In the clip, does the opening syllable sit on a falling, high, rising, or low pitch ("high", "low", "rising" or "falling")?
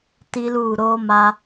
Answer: high